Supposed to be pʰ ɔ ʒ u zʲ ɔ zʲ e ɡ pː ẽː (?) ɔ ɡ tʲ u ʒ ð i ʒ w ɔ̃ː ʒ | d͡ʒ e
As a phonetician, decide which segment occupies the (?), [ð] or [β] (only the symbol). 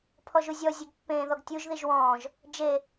ð